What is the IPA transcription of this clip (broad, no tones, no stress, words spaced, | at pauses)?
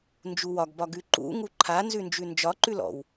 nd͡ʒuwɒɡbɒ ɡʉǃṵŋu ǃʰanzʉ nd͡ʒʉnd͡ʒɒǃʉl ɔ̰w